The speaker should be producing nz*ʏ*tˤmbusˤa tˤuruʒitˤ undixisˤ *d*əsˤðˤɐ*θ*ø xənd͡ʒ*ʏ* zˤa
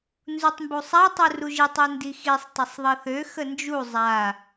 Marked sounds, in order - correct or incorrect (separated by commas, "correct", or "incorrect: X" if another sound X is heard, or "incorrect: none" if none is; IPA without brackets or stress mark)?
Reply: incorrect: u, incorrect: tˤ, correct, incorrect: u